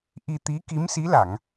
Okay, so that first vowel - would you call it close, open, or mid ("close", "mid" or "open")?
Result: close